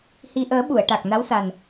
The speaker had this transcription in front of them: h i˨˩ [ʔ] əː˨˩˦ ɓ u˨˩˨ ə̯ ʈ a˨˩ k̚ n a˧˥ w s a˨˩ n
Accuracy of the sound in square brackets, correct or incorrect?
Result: correct